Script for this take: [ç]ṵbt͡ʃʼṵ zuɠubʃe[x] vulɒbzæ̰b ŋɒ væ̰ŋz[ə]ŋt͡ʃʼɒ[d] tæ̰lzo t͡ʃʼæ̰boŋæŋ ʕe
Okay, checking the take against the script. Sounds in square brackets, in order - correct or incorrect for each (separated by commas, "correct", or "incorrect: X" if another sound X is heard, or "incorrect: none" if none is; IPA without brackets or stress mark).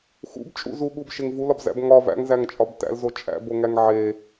incorrect: x, incorrect: ŋ, incorrect: æ, incorrect: b